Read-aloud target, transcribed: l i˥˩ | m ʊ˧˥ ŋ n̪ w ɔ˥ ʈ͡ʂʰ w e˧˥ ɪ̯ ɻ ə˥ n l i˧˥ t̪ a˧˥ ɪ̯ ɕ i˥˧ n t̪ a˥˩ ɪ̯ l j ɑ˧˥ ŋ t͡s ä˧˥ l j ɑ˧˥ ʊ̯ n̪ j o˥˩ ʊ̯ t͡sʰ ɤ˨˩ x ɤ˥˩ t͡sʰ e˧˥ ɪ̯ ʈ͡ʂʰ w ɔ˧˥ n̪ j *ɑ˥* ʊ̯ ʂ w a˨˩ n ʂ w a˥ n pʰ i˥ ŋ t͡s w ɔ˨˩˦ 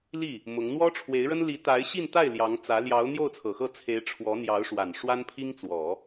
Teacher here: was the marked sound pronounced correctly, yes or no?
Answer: no